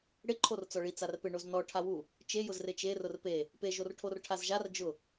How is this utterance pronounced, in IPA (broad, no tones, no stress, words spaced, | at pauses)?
ɽɪǃʰor t͡sɔɭi t͡sarpɪ ɳoznɔ ʈʰawu | t͡ʃejʊz rɪt͡ʃerʊr pe | peʒorʈʰor ʈʰazʒar d͡ʒʊ